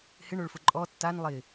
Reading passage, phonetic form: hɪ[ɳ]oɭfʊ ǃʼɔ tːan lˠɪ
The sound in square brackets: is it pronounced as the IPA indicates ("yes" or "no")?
yes